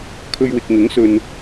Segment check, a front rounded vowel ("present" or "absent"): absent